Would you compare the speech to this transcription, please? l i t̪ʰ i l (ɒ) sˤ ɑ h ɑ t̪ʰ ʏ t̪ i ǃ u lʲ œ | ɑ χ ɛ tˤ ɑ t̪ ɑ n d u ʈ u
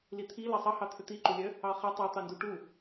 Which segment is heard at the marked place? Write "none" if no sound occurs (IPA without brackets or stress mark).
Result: ɑ